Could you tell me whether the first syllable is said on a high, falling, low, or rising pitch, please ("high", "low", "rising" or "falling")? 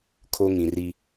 high